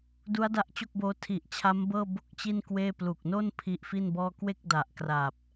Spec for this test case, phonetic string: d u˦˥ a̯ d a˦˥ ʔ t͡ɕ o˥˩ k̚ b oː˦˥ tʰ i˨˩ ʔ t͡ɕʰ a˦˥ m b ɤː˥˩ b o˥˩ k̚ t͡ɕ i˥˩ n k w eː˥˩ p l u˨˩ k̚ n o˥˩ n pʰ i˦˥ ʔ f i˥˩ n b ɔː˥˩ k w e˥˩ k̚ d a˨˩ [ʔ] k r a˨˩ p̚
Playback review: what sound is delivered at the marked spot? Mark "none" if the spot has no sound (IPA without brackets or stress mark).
ʔ